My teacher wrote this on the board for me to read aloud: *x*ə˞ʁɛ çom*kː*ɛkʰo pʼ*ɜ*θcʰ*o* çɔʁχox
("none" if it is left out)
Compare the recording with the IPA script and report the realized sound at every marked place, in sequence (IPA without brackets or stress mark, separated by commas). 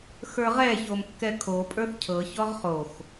x, kː, ə˞, ɤ